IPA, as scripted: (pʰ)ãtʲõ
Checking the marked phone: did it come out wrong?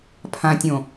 no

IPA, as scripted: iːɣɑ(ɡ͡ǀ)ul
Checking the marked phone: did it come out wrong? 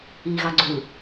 no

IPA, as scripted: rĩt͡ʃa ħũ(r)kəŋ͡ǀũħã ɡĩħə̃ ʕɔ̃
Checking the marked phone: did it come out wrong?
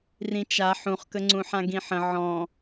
yes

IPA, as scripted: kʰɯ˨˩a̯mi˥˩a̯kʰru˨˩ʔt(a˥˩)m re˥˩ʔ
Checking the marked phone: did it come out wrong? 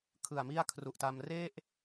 yes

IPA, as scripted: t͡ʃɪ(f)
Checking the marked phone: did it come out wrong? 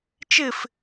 no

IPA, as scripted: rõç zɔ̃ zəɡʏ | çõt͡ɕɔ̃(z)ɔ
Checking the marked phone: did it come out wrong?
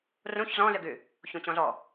no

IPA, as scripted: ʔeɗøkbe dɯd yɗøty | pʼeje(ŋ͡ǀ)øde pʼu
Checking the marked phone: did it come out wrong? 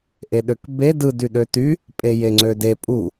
no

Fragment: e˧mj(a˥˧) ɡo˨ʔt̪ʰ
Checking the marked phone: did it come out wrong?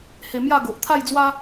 no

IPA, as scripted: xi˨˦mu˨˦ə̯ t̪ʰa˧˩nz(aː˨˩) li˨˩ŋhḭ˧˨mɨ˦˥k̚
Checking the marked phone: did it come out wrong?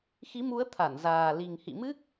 no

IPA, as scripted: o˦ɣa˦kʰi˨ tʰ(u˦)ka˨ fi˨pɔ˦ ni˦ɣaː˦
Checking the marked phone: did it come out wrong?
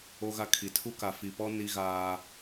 no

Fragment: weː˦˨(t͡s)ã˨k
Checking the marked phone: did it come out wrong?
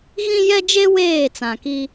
no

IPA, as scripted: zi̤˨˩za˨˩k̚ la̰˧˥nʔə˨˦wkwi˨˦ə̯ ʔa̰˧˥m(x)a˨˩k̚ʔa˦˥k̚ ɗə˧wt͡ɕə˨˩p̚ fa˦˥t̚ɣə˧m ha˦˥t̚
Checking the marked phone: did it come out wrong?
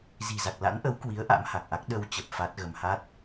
yes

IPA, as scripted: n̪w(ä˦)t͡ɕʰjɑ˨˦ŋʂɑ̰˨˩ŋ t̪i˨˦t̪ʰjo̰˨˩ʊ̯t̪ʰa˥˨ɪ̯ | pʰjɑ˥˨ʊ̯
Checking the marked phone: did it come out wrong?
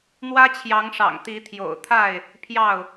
no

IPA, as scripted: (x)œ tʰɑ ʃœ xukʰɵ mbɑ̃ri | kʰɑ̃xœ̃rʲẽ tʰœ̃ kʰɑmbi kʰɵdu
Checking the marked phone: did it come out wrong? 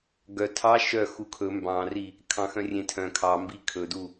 yes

